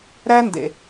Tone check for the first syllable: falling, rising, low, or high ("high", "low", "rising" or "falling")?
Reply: high